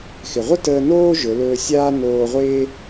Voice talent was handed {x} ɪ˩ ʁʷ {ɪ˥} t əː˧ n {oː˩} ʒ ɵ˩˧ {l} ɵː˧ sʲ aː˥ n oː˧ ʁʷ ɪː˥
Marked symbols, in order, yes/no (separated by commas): yes, no, no, yes